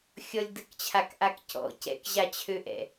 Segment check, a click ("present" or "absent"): absent